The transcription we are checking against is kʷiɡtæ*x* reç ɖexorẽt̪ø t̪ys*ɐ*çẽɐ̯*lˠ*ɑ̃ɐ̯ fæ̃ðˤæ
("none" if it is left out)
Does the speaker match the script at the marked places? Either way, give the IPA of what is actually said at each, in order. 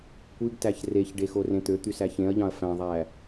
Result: ç, æ, ʎ

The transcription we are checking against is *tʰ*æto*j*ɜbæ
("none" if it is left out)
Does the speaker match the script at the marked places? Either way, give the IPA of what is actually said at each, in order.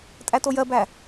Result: tʼ, j

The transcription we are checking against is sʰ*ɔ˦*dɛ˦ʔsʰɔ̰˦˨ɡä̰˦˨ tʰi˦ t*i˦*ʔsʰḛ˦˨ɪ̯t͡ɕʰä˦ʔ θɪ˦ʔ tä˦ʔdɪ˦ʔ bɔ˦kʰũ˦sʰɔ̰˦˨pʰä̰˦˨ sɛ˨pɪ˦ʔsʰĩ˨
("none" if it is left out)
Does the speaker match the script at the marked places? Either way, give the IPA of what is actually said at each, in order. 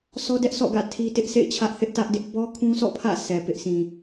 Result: ɔ˦, ɪ˦

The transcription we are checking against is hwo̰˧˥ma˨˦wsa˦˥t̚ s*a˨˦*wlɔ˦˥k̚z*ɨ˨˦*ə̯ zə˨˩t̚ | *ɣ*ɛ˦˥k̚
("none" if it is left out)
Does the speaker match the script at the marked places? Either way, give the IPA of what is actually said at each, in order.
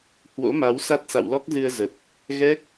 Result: a̰˧˨, ɨ˧, ɣ

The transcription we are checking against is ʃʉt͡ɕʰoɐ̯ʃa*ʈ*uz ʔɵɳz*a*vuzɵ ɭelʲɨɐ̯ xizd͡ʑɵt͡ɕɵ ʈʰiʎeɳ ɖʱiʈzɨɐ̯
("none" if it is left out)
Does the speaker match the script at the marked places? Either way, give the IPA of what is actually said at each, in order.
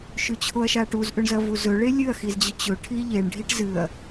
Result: ʈ, ɐ

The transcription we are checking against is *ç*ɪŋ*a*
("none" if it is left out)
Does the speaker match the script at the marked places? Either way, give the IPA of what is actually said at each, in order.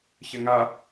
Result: ç, a

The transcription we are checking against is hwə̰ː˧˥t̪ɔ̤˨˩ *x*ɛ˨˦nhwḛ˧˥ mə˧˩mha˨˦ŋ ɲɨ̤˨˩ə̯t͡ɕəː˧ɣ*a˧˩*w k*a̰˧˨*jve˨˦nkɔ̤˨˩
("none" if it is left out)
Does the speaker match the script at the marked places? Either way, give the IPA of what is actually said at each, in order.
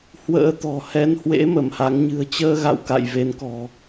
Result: h, a̰˧˨, a̰˧˨

